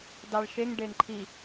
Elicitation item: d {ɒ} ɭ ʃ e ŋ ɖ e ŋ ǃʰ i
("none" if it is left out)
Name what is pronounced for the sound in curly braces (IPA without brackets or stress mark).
ɑ